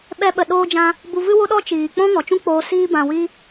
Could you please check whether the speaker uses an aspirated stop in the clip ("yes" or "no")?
no